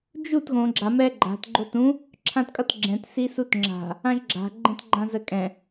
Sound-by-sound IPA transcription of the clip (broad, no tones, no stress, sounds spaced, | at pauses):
d͡ʒ u t ɣ õ ɡ͡ǁ a m ɛ ɡ͡ǃ a̤ t ɡ͡ǃ o t ũ | ǁʰ ã t kʼ ʌ t ɡ͡ǁ ɛ̃ t s i s u t ŋ͡ǁ a̤ | ã ʒ ɡ͡ǁ a̤ ɡ͡ǃ ɛ̃ t ɡ͡ǃ ã z ə kʼ ɛ̃